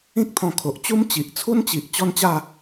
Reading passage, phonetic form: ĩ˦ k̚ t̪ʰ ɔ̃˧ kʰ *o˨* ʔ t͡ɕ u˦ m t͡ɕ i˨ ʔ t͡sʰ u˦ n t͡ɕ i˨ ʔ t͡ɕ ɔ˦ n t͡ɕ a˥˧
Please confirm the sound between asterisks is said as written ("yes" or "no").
yes